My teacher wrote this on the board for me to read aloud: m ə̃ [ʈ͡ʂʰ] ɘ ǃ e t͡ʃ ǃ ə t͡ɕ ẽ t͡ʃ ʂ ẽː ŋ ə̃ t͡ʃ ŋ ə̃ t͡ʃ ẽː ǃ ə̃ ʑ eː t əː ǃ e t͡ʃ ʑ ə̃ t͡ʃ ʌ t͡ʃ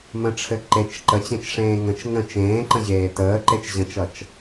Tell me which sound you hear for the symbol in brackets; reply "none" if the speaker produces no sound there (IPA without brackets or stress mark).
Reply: ʈ͡ʂʰ